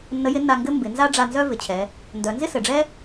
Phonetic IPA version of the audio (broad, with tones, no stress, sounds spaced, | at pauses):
nː ə˧˥ j ɪ˧˥ nː a˧ ŋ ɡ ɘ˥ m b ɪ˩˧ n z a˥ ɖ͡ʐ a˧ n z œ˥ v ɪ˩ t͡ɕʰ ɛ˩˧ | n d œ˩˧ n z ɪ˥ s ɘ˩ ɖ͡ʐ ɛ˥